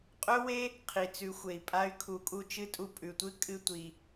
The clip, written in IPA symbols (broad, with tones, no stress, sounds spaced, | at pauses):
qʼ ɵ˥ w e˥ | qʰ i˩ t͡s ʉ˩˧ xʷ e˩ i̯ pʼ a˧˥ y̯ kʰ u˩˧ kʼ u˧ t͡ʃ ɨ˧˥ tʼ u˧ pʼ ʉ˩ tʷ ɨ˥ kʼ ɨ˧ tʷ i˩